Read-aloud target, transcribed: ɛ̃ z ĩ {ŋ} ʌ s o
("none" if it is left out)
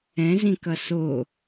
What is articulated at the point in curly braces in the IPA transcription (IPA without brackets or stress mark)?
k